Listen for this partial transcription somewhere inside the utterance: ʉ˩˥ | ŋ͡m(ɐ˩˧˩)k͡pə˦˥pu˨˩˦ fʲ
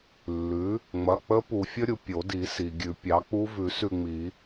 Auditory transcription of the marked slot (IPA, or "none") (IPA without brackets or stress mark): ɐ˩˧˩